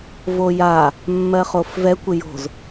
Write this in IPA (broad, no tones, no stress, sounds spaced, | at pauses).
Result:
v o j a | mː ɜ χ o f v ɛ kʷ ɪ j o̤ z